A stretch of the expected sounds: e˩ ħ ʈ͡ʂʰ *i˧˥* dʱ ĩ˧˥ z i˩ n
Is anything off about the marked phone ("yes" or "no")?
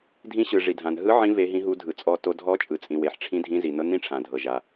yes